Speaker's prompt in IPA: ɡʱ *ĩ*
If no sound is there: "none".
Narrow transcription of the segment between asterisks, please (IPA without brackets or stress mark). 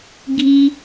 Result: i